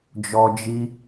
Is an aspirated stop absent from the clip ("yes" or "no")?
yes